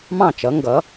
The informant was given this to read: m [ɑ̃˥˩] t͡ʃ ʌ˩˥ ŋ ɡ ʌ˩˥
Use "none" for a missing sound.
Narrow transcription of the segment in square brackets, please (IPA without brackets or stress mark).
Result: ɑ̃˥˩